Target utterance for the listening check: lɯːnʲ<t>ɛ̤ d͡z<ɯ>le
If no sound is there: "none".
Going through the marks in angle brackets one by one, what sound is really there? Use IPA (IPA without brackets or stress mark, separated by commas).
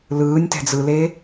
t, ɯ